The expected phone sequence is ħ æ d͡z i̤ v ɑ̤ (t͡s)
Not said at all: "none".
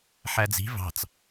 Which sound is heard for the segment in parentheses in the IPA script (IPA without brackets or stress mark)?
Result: t͡s